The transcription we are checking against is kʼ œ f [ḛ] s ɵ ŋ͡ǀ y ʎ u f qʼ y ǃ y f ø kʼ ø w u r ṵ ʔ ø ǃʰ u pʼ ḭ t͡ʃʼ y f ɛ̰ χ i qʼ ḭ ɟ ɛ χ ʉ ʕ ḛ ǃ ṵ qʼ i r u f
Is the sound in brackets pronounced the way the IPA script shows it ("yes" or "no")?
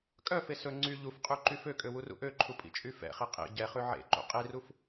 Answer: no